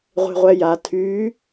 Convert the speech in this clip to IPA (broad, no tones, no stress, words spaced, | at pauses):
ʁʷe̤ʁʷɛja tʰy